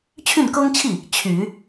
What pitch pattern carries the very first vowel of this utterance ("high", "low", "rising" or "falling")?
falling